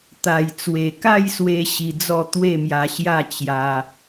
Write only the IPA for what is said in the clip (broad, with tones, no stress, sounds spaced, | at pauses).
t̪ a˨˩ j t͡s w e˨˩ k a˥˧ j s w e˧ ɕ i˧ d͡z ɔ˥˧ t̪ w e˥˧ m j a˧ ɕ j a˥˧ t͡ɕ j a˧